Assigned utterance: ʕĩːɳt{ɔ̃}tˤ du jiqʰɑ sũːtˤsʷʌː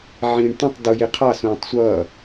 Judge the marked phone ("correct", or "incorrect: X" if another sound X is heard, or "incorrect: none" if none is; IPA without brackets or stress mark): correct